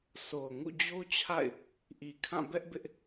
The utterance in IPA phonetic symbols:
so˨ʊ̯ŋṵ˦˨ d͡ʑo˦t͡ɕʰa̰˦˨ɪ̯ | ʔi˨kʰã˦˨bɛ˦ʔbɪ˦ʔ

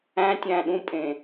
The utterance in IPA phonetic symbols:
æ̃tʲæ̃ɗũpʼẽ

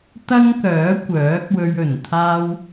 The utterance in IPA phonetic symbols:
t̪ɐ˥ŋkœː˨˥ kʷœː˨˥k̚ wɵ˧ɥɵ˨˩nt̪ʰaː˥w

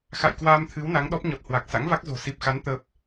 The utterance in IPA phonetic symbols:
xa̰˧˨jkwaː˧mt̪ʰɨ˨˦w na˨˦ŋɗɔ˦˥p̚ɲɔ˨˩t̚ hwa˨˩k̚ sa̰˧˥ŋva˦˥k̚zo̤˨˩ si˨˩p̚xa˨˦n t̪ə˦˥p̚

